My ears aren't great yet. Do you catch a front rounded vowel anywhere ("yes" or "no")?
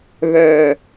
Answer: yes